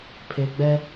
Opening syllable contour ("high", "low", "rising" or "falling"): low